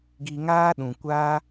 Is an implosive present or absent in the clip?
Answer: present